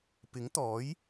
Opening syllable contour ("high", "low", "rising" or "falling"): rising